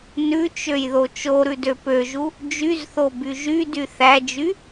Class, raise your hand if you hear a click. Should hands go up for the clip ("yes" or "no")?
no